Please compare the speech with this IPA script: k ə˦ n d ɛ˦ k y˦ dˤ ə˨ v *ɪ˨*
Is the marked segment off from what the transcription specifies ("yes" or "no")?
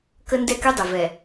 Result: yes